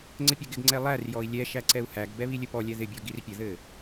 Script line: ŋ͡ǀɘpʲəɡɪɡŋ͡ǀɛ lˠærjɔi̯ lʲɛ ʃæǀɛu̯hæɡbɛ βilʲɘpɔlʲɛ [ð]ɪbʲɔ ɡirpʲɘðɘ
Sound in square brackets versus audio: correct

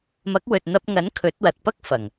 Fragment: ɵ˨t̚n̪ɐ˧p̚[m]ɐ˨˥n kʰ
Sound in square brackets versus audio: incorrect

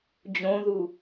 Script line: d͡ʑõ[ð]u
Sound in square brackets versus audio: correct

